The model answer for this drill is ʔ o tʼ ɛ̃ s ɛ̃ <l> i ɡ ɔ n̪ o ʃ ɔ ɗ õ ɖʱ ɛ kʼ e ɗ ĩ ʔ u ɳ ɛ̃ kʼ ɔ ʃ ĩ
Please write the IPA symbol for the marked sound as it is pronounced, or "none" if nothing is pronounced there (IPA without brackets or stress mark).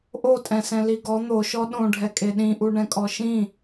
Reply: l